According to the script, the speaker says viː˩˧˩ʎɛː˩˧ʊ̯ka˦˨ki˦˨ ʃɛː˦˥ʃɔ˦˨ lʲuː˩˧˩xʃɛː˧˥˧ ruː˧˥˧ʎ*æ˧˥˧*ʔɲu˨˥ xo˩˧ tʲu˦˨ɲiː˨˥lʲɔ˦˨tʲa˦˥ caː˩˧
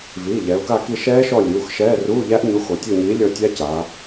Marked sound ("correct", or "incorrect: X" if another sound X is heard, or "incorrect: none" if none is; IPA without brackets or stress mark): incorrect: æ˦˥